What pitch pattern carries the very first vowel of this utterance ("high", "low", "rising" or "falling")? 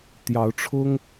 rising